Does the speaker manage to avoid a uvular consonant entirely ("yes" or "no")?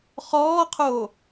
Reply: no